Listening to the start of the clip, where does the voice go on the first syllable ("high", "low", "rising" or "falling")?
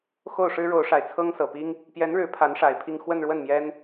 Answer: falling